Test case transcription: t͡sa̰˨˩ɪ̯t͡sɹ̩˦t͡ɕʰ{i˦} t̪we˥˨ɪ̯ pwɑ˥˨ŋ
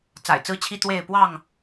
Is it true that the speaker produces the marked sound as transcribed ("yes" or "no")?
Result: yes